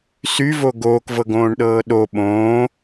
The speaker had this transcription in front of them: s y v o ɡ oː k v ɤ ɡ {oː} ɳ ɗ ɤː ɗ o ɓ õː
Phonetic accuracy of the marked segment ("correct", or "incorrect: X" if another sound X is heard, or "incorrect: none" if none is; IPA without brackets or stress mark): incorrect: õː